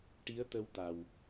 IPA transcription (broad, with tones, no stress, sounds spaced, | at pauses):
ʈ i˧˥ ə̯ t̪ ə˧ w t̪ a˨˩ w